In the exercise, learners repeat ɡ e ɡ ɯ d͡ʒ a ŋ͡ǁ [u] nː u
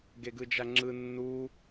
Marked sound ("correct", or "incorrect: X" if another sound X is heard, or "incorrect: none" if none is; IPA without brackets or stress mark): incorrect: ɯ